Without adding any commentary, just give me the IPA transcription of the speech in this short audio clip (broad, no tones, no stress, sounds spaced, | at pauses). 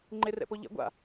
ŋ͡ǃ e r ɛ̰ p o ʎ ɛ̰ ɡʷ a̰